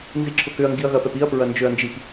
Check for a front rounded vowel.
present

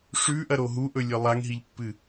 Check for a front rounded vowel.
absent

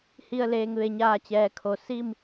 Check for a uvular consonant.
absent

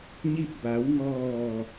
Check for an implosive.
absent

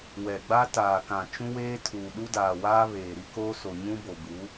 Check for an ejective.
absent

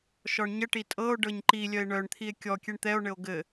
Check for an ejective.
present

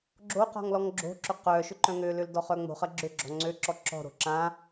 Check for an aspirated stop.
absent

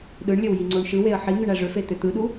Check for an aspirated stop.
absent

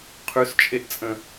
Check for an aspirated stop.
present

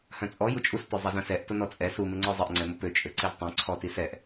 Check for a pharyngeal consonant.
absent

